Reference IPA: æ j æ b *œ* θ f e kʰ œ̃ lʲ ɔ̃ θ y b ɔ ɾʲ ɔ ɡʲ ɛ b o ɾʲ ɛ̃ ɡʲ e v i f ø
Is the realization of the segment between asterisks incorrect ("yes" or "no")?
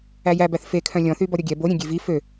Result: yes